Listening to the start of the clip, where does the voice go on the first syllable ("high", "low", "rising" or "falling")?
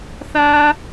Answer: high